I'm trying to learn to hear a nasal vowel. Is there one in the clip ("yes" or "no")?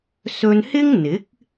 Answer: no